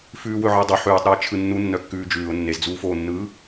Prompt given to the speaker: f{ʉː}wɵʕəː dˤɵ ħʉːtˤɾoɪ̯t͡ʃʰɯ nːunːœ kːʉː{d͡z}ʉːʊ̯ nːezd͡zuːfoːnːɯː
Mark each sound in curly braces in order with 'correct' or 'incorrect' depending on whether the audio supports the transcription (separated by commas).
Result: correct, incorrect